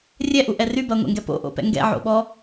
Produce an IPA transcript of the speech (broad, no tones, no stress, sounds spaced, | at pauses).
rʲ ɛ ʔ u ʔ ɛ r y b ɐ ŋʷ ɛ̰ ŋ ɡ ɛ p o̰ ʔ o̰ p ɛ̰ ŋ ɡ ɛ̰ ʕ o̰ ɓ ɔ